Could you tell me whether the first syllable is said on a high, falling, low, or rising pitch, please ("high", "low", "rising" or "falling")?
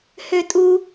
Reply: high